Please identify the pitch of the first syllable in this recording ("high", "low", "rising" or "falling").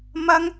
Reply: high